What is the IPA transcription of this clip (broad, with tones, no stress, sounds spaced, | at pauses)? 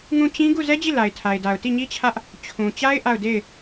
ŋ ũ˦˨ t͡ɕ ĩ˦ ɡ u˦˨ z ɛ˦ d͡ʑ i˦˨ l a˨ ɪ̯ tʰ a˨ ɪ̯ d a˨ ʊ̯ t i˦˨ ɲ i˦ t͡ɕʰ ä˦ ʔ | t͡ɕʰ ũ˨ t͡ɕ a˦ ɪ̯ ʔ a˦˨ ʊ̯ d e˦˨ ɪ̯